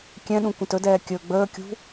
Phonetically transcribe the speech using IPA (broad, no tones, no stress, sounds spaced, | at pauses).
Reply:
kʲ ɛ̃ ɗ ũ kʷ ə̃ t ɵ d ɛː kʲ ɵ ɡ͡b əː kʲ ṳ